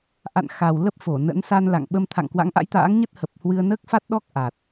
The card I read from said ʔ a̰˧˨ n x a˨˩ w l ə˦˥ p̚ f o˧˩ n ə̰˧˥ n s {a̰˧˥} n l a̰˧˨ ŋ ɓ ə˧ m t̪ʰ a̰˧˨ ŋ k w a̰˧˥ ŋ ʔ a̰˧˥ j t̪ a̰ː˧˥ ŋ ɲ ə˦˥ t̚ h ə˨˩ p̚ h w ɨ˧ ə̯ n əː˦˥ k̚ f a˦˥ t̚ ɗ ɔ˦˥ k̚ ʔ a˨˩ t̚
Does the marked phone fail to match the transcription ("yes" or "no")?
yes